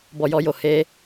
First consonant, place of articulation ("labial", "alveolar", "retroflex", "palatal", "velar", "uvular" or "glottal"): labial